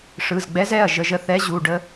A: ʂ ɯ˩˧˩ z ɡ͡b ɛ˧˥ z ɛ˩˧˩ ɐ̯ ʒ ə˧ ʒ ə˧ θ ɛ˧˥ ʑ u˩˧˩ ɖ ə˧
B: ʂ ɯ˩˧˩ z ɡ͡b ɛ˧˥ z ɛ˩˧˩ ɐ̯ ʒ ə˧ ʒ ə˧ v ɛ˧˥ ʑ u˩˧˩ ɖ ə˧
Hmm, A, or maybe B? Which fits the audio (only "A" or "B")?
A